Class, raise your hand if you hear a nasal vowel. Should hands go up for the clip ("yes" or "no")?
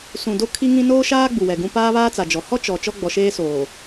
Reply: yes